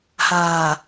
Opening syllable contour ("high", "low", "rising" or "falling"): low